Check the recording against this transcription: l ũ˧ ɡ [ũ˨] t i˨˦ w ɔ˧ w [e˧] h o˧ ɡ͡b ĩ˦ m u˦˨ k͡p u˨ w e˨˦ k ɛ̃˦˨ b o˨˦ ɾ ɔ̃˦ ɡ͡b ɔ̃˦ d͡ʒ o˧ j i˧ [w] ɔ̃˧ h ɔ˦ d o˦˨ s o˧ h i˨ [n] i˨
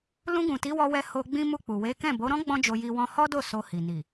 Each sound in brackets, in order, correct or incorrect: correct, incorrect: ɛ˧, correct, correct

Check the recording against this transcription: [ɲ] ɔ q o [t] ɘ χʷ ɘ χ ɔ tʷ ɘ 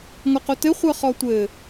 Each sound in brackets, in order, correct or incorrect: incorrect: ŋ, correct

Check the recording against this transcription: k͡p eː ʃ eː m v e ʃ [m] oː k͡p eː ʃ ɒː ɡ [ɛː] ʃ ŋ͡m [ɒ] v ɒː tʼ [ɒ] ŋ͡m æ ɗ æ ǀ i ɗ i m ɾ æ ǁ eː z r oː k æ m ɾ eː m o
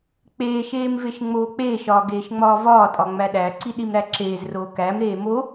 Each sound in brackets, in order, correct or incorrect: incorrect: ŋ͡m, incorrect: eː, incorrect: ɒː, correct

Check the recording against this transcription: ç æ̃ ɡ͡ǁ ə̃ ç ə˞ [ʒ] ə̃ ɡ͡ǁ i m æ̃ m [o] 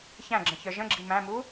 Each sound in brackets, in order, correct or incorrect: correct, incorrect: u

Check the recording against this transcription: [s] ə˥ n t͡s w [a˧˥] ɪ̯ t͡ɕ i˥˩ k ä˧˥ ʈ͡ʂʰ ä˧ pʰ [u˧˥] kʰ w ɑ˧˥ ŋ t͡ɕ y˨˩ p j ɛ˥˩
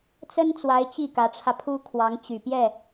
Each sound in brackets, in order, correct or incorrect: incorrect: t͡s, correct, incorrect: u˥

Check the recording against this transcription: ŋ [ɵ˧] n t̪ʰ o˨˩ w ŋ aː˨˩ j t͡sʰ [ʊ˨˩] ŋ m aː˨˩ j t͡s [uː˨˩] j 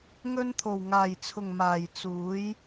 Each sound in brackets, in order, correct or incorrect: correct, correct, incorrect: uː˨˥

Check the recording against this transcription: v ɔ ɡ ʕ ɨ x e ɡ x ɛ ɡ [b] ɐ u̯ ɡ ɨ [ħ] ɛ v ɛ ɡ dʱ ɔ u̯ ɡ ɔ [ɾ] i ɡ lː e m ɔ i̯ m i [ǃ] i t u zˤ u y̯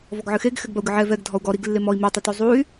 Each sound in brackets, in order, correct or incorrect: correct, incorrect: ʕ, correct, incorrect: tˤ

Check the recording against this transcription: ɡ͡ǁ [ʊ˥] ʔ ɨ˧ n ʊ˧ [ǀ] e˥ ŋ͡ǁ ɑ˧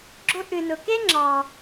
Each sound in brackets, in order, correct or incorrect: correct, incorrect: k

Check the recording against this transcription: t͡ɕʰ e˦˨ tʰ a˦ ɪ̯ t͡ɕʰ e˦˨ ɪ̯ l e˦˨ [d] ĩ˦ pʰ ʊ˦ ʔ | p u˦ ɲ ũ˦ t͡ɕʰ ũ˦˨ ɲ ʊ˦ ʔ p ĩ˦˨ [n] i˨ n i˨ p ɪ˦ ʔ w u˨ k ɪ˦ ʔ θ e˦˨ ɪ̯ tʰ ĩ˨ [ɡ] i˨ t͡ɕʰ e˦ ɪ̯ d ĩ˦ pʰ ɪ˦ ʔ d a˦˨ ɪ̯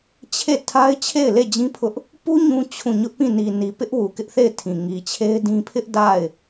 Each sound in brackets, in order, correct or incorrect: incorrect: d͡ʑ, correct, incorrect: ŋ

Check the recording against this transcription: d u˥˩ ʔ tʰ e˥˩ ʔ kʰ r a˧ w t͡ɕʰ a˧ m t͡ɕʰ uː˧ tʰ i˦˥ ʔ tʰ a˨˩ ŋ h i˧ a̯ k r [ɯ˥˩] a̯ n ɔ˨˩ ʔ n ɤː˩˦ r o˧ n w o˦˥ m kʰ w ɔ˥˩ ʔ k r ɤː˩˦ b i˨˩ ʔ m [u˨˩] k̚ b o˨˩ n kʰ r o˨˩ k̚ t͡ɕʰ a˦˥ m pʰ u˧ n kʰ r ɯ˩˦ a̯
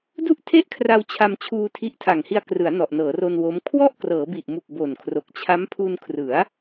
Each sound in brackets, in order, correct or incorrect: incorrect: ɯ˩˦, correct

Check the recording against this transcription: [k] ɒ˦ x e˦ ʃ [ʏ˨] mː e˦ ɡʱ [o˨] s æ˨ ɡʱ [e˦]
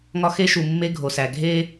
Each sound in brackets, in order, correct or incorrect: incorrect: ŋ, incorrect: u˨, correct, correct

